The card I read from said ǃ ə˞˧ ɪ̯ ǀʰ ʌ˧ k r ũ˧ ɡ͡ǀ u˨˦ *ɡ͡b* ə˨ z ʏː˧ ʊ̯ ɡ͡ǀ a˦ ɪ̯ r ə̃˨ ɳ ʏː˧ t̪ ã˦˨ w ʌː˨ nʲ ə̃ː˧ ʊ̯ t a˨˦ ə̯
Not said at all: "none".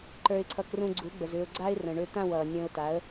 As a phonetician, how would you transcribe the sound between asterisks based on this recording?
ɡ͡b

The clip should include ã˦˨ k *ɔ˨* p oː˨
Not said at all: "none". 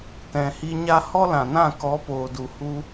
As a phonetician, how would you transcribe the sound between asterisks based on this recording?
ɔ˨˦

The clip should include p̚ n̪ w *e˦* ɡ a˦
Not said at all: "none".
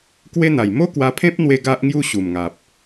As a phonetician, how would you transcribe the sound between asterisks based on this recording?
e˧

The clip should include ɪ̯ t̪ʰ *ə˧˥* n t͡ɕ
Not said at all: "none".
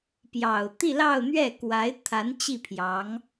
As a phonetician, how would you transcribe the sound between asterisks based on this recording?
a˧˥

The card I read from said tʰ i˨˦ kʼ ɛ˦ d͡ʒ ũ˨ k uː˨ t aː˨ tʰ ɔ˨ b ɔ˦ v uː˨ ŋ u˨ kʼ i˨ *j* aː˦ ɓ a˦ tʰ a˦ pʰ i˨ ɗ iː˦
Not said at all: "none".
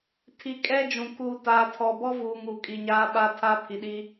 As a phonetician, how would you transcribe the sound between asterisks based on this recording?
ɲ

